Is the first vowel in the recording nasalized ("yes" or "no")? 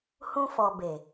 yes